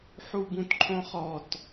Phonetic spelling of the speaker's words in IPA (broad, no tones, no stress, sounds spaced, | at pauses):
ħ u b ũ t ǃʰ õ χ ɔ t